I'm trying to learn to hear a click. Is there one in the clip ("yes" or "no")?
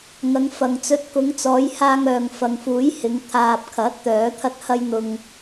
no